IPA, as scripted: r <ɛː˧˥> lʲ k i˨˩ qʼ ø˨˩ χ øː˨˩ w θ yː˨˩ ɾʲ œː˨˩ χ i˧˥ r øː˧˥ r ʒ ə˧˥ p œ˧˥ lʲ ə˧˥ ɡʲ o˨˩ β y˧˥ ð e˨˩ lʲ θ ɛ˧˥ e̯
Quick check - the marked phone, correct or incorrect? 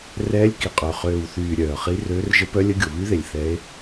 correct